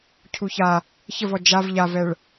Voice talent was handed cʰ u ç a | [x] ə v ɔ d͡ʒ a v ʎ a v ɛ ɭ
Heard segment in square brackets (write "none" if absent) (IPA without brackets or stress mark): ç